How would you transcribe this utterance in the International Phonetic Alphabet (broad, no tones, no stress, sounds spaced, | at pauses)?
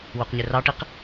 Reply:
w u q ɲ ɪ r ɑ ʈ i q